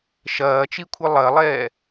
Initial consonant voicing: voiceless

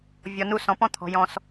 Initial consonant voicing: voiced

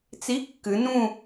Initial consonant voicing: voiceless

